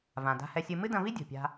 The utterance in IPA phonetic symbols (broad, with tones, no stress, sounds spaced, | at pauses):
v ã˩ d a̤˧ h ɛ˧ sʲ ɨ˧ m ɨ˥ d ɐ̃˧ v i˥ dʲ o̤˩ pʲ a̤˧